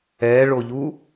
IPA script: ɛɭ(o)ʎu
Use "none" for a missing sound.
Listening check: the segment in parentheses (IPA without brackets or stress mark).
o